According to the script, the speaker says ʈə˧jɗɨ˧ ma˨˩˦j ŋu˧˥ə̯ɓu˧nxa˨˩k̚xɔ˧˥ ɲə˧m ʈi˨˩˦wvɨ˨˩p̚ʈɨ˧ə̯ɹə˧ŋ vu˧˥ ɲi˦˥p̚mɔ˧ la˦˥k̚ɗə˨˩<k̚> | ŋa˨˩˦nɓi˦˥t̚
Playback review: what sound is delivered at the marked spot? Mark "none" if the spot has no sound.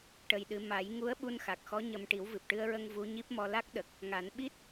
k̚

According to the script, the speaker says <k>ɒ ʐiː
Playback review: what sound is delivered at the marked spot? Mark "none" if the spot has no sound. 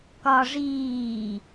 k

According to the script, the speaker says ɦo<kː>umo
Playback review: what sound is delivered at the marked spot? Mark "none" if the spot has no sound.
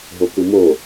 k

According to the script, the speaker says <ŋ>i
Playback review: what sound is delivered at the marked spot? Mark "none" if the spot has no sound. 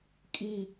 kʼ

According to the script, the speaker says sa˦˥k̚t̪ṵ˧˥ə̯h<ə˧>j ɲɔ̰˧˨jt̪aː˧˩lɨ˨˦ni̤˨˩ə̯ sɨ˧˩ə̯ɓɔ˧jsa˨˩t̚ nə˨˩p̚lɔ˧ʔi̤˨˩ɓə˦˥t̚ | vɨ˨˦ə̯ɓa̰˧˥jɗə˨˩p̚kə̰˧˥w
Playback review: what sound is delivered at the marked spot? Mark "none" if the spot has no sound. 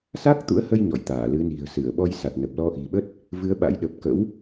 ə˧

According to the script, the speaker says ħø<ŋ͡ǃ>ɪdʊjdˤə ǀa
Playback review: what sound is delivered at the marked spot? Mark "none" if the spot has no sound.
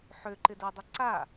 ǃ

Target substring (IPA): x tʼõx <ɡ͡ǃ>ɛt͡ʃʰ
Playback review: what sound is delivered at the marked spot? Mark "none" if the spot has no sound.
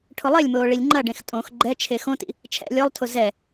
ɡ͡ǃ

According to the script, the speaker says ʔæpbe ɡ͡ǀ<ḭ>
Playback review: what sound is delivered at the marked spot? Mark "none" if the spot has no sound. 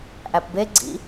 ḭ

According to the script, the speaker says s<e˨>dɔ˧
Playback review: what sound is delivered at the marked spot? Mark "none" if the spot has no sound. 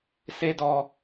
e˦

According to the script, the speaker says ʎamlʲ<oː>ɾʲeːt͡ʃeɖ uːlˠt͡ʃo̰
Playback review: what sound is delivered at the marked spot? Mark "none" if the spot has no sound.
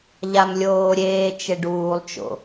oː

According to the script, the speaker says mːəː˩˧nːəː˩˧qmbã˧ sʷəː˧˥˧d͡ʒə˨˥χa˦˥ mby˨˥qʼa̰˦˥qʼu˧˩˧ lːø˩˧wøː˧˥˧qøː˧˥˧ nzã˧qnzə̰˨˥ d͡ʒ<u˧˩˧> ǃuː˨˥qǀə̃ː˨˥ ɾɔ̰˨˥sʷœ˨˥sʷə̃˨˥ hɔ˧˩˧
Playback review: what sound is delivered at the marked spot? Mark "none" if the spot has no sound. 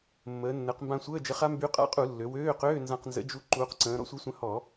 u˧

